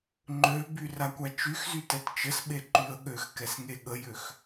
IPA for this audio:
ŋ͡ǃ ø b y r a kʷ a t͡ʃ y x z y t ɛ t t͡ʃ ə s ɓ e ǃ y ə̯ ɠ ø x k ɛ s ŋ e ɠ ə j ø x

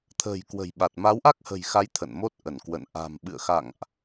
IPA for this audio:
t̪ʰ ə̤ː˨˩ j k w ə̤˨˩ j ɓ a˨˩ t̚ m a˨˦ w ʔ a˦˥ k̚ h ə̤˨˩ j x a˨˦ j t̪ʰ ə̰˧˨ n m o˦˥ t̚ ʔ ə˧˩ n k w ə̰˧˨ n ʔ a̤˨˩ m ɓ ɨ̰˧˨ ə̯ x a̰˧˨ ŋ ʔ

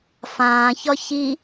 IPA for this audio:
f ãː ç ɒ ç i

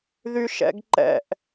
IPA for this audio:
ð y ʃ ɛ̰ ɡ ǃ ɛ̰ ʔ

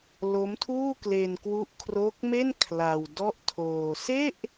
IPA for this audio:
l o˦˥ m tʰ uː˥˩ k l e˧ n k w u˦˥ ʔ kʰ r o˦˥ k̚ m e˥˩ n kʰ l a˧ w d ɔ˥˩ ʔ tʰ oː˧ s e˥˩ ʔ

